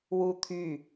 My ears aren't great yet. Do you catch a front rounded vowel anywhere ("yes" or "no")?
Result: yes